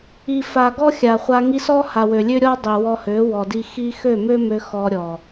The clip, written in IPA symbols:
i˨ f a˨ ɡ ɔ˦ xʲ a˨ χʷ a˧ ŋ i˧ s ɔ˦ h a˨ w ø˨ lʲ ø˦ ɾʲ ɔ˦ dˤ i˨ w ɔ˧ h ø˨˦ w ɔ˨ d i˧ x i˦ x ø˦˨ m ø˦ m ø˧ x ɔ˧ ɾʲ ɔ˨

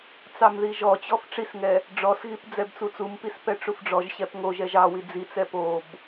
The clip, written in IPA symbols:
t͡s ɑ m ð i ʒ ɔ t͡ɕ ɔ f ʈ͡ʂ i s ŋ ɛ | ɖ͡ʐ ɔ s ɣ i p d͡z ɛ b t͡s u t͡s u m p i s p ɛ ʈ͡ʂ u f ɖ͡ʐ ɔ ʒ ɕ ɛ p ŋ o ʒ ɛ ʒ ɑ w i d͡z i t͡s ɛ p o b

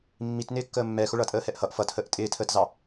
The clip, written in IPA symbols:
mː i t n ɪː kː əː mː ɛ x ʊ ɭ ʌ tʼ əː h ɛ ʔ h ʌ ʔ f ʌ t h əː ʔ tʼ ɪː tʰ əː t z ɑ

